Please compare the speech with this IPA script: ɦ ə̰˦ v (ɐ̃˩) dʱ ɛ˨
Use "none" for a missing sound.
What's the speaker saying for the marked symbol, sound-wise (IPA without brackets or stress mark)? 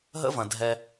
ɐ̃˩